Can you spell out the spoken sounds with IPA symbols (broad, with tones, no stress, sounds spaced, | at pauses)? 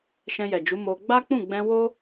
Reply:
ʃ ɛ̃˧ j ɛ˨ d͡ʒ u˨˦ m o˧ ɡ͡b a˦ k͡p ũ˦˨ ɡ͡b ɛ̃˧ w o˦